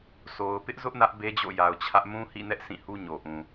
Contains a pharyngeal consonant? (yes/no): no